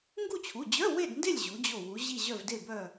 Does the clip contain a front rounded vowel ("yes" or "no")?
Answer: yes